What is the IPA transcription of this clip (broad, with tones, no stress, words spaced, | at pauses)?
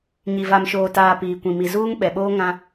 ɲi˨va˨mʃoː˨taː˨ piː˨kʷĩ˨mi˨ zuː˦ŋɓɛ˨ɓoː˦ ŋã˦